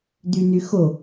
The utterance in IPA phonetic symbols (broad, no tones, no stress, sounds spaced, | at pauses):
d̪ y n̪ y x o